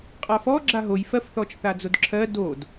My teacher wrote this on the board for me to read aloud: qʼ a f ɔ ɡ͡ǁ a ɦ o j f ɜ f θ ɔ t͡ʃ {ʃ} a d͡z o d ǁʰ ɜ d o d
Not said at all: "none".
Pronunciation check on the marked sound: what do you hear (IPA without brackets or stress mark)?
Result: θ